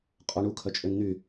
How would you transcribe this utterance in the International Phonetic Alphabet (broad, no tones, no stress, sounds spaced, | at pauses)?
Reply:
qʼ ɔ ɳ u kʰ œ t͡ʃʼ ø n n̪ y